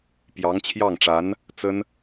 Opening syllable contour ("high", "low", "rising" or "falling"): rising